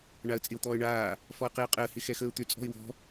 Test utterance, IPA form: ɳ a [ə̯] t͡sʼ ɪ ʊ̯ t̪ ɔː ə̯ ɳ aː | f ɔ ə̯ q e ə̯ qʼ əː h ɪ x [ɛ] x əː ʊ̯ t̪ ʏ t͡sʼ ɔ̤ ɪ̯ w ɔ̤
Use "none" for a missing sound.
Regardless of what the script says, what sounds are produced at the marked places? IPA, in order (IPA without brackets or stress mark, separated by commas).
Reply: ə̯, ɛ